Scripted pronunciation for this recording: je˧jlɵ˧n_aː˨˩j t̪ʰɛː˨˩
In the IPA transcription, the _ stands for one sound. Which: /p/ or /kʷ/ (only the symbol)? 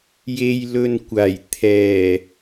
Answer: kʷ